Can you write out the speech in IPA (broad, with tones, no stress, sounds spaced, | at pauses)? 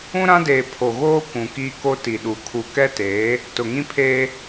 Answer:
ũ˦ ɾ ã˦ d eː˨ pʰ o˨ ɣ oː˦ kʷ ũ˨ k iː˦ k o˦ t i˨ ɗ u˨ kʰ u˨ k ɛ˦ t eː˨˦ | t ʊ˨ ŋ ĩ˦ pʰ eː˦